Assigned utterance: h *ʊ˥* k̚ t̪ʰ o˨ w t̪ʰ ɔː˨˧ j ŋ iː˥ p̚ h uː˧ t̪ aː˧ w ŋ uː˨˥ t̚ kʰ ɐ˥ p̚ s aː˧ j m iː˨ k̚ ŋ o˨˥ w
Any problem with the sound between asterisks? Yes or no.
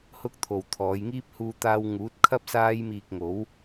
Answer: no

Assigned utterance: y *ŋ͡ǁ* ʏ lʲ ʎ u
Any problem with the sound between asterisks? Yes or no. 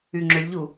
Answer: no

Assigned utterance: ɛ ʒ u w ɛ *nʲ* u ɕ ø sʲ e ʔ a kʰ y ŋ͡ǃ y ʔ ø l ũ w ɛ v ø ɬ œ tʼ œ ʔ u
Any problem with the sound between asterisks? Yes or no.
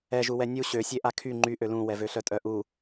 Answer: no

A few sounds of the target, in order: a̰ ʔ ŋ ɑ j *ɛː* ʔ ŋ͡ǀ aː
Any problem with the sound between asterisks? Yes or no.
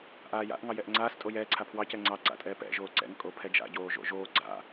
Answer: yes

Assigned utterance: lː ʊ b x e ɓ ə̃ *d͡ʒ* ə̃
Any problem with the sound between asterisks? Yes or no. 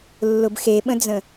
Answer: yes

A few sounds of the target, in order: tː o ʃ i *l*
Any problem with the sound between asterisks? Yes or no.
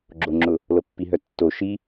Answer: yes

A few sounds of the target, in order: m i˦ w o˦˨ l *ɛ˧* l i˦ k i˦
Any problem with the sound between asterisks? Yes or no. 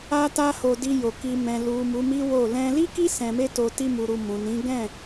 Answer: yes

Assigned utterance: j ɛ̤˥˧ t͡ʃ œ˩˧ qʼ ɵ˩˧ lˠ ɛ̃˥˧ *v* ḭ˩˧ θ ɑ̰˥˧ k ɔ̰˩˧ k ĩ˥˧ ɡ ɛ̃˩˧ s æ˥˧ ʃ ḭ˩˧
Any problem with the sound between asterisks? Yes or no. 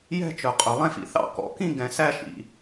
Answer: yes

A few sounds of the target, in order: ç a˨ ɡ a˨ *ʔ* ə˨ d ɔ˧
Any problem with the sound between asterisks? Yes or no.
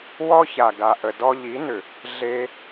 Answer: no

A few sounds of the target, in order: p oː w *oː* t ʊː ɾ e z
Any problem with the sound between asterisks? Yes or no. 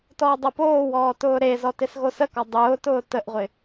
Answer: yes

